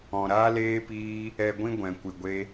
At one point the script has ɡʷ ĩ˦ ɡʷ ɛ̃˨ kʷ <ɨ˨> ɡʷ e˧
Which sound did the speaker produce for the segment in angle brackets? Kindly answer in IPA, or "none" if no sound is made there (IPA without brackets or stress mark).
ɨ˨